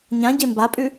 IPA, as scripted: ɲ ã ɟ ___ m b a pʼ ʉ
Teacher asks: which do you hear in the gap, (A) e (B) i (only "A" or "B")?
A